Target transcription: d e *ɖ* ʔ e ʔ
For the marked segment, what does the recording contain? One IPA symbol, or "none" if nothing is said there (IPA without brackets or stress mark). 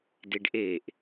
ɖ